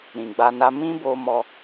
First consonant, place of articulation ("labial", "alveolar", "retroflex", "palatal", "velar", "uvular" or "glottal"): alveolar